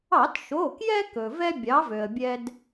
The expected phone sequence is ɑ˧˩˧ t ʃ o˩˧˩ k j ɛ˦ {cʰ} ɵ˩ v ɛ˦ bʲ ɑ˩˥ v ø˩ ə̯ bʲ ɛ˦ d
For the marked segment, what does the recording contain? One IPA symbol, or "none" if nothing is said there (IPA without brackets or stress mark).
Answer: k